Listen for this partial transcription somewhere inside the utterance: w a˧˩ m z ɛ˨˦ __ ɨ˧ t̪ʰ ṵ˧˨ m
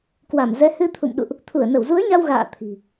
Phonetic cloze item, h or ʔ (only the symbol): h